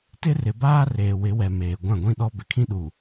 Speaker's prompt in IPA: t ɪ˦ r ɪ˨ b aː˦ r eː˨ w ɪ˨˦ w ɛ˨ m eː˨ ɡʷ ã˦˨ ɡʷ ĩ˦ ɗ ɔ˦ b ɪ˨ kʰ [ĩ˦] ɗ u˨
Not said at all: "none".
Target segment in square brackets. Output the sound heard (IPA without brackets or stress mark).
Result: ĩ˦